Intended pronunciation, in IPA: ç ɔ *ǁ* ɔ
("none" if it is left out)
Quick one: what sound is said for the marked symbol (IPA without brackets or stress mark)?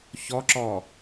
ǁ